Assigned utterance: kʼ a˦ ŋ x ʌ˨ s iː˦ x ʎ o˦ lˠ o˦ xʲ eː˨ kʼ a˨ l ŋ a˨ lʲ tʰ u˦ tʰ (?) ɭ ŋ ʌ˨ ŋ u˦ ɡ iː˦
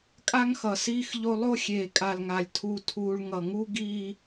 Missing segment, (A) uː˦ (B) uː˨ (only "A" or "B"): A